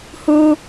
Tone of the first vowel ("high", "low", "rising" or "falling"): high